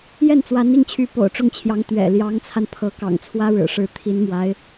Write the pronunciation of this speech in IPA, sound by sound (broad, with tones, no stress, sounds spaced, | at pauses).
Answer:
j ɛ˥˩ n t͡s w a˧˥ n i˥˩ ŋ t͡ɕʰ y˧˥ p o̰˨˩ ʊ̯ ʈ͡ʂ ʊ˥˩ ŋ t͡ɕʰ j ɑ˧˥ ŋ t̪ ɥ ɛ̰˨˩ l j ɑ˧˥ ŋ t͡sʰ a˧ n pʰ ɤ˧˥ k ɑ̰˨˩ ŋ t͡sʰ w ä˥ ɻ ɻ̩˨˩ ʂ ɻ̩˧˥ t̪ʰ i˧˥ n m w a˧˥ ɪ̯